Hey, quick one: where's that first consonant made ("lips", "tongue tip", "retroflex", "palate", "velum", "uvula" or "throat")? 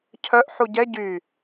palate